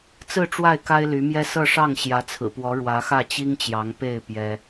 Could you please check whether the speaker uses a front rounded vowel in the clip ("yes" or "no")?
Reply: yes